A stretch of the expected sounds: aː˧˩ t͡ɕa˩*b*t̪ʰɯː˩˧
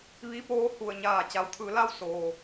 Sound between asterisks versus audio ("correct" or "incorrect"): incorrect